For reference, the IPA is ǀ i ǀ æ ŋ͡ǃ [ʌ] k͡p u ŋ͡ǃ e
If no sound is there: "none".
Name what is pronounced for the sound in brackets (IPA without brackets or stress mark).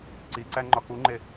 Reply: ɒ